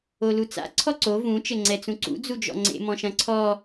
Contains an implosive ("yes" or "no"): no